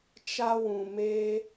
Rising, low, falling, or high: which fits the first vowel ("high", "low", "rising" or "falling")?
high